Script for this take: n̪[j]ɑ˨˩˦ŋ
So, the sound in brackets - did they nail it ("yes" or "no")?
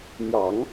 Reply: yes